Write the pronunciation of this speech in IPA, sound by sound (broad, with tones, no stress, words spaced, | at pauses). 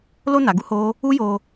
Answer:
lo˧na˨ɡu˧ ho˦ | u˦jo˧